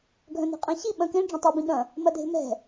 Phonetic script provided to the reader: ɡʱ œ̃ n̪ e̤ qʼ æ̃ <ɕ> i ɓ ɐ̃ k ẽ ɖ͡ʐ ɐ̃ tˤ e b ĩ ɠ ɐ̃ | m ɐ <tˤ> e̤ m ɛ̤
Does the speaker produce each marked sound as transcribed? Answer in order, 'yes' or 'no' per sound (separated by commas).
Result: yes, no